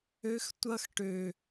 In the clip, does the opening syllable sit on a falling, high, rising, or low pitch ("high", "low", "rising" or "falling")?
high